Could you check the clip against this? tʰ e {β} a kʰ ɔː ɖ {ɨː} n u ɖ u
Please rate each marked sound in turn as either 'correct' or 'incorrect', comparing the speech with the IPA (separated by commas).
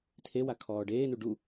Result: incorrect, incorrect